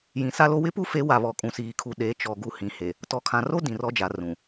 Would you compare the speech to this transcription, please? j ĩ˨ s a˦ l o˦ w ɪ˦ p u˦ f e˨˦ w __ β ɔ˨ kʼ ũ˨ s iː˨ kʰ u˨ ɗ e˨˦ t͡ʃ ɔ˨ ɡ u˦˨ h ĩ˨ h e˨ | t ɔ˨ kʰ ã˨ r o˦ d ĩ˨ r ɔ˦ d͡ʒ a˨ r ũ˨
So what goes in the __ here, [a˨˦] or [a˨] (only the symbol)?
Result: a˨